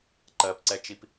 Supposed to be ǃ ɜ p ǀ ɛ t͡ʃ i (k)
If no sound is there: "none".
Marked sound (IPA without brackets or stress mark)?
p